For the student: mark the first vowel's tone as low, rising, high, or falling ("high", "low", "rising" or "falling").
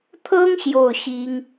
high